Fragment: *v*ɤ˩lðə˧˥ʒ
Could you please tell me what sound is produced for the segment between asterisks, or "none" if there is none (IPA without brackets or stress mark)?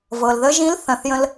v